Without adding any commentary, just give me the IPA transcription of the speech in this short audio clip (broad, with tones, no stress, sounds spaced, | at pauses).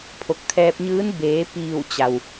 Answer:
pʰ o˧˩ k̚ t̪ʰ ɛː˧ p̚ ɲ ɯː˧˥ n b eː˩˧ p iː˧˩ w t͡ɕ a˩ w